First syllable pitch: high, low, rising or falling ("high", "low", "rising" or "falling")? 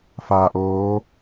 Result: low